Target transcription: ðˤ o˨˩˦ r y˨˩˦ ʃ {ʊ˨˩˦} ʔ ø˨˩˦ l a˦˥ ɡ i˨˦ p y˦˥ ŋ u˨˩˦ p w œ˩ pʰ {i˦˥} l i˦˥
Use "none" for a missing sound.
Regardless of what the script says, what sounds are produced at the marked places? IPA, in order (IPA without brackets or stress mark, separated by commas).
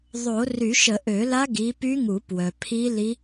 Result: ə˨˩˦, i˦˥